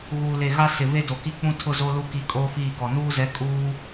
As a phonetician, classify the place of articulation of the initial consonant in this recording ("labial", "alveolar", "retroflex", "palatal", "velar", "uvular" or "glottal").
velar